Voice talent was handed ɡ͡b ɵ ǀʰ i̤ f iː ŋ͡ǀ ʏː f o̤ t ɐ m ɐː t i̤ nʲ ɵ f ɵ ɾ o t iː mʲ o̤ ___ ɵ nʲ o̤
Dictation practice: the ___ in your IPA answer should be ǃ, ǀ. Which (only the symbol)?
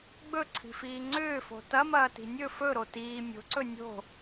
ǀ